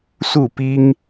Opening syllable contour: falling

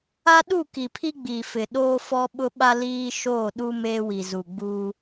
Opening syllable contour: high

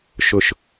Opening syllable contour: low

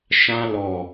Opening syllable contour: high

